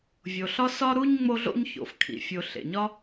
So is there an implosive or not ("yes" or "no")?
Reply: no